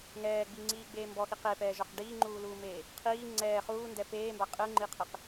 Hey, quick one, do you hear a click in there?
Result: yes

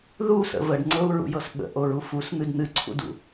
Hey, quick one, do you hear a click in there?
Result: yes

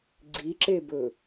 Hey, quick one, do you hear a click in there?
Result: yes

